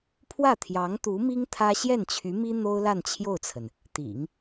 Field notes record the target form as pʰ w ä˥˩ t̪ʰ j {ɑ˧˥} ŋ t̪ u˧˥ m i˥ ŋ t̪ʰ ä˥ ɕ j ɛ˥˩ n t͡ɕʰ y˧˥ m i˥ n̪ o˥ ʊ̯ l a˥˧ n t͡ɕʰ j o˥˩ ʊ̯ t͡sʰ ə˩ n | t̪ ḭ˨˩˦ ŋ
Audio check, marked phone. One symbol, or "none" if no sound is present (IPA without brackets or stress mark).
ɑ˧˥